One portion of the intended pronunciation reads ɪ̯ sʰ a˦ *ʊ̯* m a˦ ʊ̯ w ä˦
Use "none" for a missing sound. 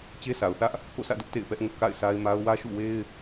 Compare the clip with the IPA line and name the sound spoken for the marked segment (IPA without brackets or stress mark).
ɪ̯